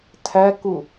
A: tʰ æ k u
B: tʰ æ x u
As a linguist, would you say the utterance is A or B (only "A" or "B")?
A